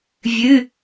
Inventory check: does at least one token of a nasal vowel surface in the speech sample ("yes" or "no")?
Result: no